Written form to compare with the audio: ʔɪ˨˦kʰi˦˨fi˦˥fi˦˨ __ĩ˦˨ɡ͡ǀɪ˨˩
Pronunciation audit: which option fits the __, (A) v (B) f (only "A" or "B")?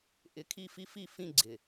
B